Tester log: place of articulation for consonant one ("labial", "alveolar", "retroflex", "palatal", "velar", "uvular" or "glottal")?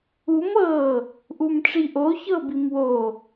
labial